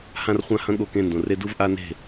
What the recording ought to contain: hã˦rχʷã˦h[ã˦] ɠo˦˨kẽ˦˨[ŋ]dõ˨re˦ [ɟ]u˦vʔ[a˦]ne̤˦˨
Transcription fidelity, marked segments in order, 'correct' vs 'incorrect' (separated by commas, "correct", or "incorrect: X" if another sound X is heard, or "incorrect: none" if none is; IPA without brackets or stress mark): incorrect: ɐ̃˦, incorrect: n, incorrect: d, correct